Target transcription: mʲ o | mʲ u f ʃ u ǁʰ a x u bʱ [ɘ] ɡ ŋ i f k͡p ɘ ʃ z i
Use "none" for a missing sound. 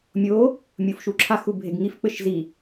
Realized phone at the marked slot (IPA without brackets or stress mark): e